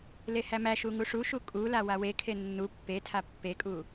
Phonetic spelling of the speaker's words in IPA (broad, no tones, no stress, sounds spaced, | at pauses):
l e h æ m æ ʃ u ŋ u ʂ u ʃ u kʼ u l a w a w e kʰ e nː u pː e tʰ a pː e kʼ u